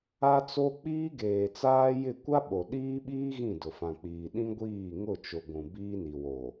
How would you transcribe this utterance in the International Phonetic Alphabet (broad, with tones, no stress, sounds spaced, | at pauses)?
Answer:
a˦ t͡s o˦ k͡p iː˦ ɡ eː˨ t͡s aː˦ j ɪ˦˨ kʷ a˦ ɓ o˨ ɗ iː˦ ɓ iː˦ ɣ ĩ˦˨ d ʊ˨ f ã˨ k͡p iː˨ ɗ ĩ˦ ɡʷ iː˦˨ ŋ ʊ˦˨ t͡ʃ ʊ˨ ɡʷ ũ˨ b iː˦ n i˨ w o˨